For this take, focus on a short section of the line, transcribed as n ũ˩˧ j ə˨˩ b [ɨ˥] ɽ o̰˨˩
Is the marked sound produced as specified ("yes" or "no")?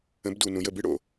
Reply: yes